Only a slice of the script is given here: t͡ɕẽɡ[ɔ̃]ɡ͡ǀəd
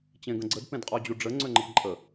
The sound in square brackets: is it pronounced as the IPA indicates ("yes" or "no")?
no